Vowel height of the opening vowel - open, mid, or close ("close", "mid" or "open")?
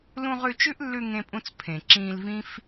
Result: close